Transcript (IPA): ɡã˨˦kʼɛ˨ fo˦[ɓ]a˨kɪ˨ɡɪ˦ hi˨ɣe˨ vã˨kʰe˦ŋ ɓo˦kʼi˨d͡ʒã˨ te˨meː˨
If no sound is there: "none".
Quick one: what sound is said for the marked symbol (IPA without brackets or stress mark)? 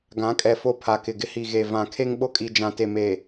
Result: pʰ